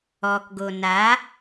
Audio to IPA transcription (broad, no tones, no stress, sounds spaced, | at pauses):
ɔ k ɡ o n a